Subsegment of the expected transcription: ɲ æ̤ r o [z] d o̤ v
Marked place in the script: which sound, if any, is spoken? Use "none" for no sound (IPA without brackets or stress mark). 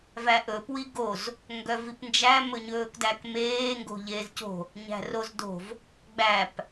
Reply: z